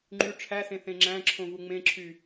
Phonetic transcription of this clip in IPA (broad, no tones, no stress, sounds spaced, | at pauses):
ŋ͡ǃ y ʈ͡ʂʰ æ s ẽ θ ẽ ŋ͡ǁ æ̃ ǁʰ õ v u ŋ͡m ẽ ǁʰ y